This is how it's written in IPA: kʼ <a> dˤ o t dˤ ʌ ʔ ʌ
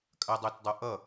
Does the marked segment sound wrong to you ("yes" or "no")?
yes